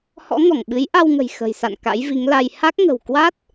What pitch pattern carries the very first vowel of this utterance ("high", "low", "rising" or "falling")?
rising